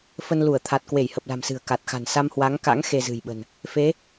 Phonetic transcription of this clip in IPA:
fə˧n lu˧˩ə̯t̪ʰa˨˩t̚ kwe˧˩jhə˨˩p̚la̤˨˩msɨ̤˨˩ə̯ ka˨˩t̚xa̤˨˩n sa˧mhwa˨˦ŋka̰˧˥ŋ xe˧zɨ̤˨˩jɓə̤˨˩n | fe˨˦

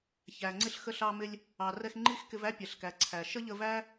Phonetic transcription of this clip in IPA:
çæ˨ŋ͡ǀɪ˦ɬ xə˧ɬɑ˧mɪ˧lʲ | ɑ˨ rɛ˧xŋ͡ǃi˦xkɪ˧v æ˦pʲɛ˨ɬkæ˨ ǀʰæ˨ ʃə˦ʎə˧væ˦

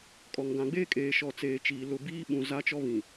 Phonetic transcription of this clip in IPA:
kʼɔ˨ŋɡã˨ɡ͡beː˦ kʼeː˨ʃɔ˨ t͡seː˨t͡ʃiː˨ lʊ˨ biː˦ ɓũ˨za˦t͡ʃɔ˦ βĩ˨

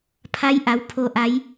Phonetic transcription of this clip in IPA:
pʰa˧˥jʔa˩˧w pʰo˩ʔa˩˧j

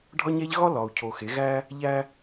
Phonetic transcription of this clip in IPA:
ɖʱɒ˦ɲæ˦ʎ ɣɒ˦ lɒ˨u̯ cʰo˨xe˨˦ ɣæ˦ | ʎæ˦

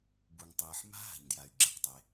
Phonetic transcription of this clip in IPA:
bu˩ŋtˤɯː˩ħ ma̤˥ɦa̤˩ɲdja˩y̯ ɡ͡ǁe˩qtˤe˩

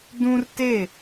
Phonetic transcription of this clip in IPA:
dũ˦rte˦˨

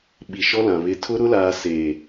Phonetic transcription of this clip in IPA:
ɓi˨ʃɔ˦lã˨ βɪ˨tʰʊ˦ ɾʊ˦laː˨ se˨

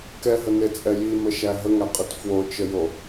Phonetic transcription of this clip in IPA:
kɛɦənet͡sʼɛ jiməʃæ ɦəŋæqʼit fwot͡ʃəjo

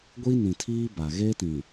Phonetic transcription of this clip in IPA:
ɡʷi˦nĩ˨tʰiː˦ ba˨ ɣe˦tĩ˨

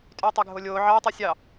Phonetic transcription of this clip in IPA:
tʼyːtˤɛɡʱolʲoː ʕɑ tˤisʲɑ

